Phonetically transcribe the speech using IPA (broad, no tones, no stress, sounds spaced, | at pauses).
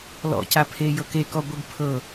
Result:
l ɔ̰ c a pʰ e j ɤ k e k ɔ ɡʷ e ɡ pʰ ɤ